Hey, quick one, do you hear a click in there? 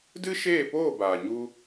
no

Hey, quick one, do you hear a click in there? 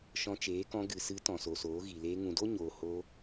no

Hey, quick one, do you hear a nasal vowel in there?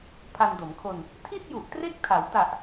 no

